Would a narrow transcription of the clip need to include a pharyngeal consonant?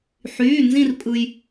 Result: yes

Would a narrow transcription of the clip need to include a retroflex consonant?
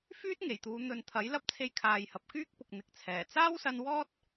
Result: no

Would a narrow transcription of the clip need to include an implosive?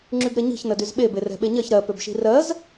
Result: yes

